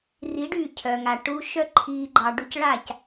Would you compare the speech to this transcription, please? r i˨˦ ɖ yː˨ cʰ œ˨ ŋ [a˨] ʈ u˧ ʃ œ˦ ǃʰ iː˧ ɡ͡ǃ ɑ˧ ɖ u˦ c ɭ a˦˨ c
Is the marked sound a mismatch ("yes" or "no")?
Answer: no